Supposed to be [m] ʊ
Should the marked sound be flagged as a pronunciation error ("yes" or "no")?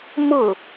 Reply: no